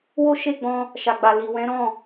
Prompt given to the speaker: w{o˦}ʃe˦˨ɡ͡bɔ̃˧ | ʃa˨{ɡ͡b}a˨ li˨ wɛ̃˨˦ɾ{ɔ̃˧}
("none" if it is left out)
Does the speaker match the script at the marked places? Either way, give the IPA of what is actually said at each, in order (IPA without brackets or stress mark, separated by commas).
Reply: o˦, ɡ͡b, ɔ̃˦˨